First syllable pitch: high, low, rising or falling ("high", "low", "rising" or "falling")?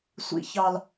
high